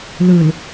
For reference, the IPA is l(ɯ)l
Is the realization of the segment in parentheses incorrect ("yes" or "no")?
no